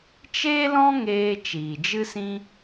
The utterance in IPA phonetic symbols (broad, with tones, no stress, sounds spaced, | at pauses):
t͡ʃ eː˦ l ɔ̃˦ ŋ eː˧ t͡ʃ iː˨ d͡ʒ ɨ˦ s ĩ˦